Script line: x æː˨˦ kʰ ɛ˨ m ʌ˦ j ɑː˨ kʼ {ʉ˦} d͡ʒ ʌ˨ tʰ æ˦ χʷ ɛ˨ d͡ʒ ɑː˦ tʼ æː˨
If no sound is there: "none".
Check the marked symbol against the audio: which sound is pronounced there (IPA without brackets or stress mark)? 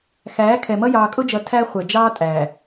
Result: ʊ˦